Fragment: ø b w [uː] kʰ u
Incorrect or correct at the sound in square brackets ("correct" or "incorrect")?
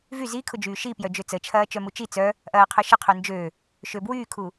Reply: incorrect